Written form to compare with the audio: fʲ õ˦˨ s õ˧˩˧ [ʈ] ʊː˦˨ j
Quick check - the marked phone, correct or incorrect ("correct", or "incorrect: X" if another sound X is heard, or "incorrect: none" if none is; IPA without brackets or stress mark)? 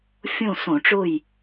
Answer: incorrect: ʈ͡ʂ